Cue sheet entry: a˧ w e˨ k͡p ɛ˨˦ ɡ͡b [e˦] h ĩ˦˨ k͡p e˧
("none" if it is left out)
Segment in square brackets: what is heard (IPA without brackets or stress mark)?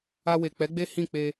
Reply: e˦